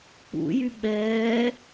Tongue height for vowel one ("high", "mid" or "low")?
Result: high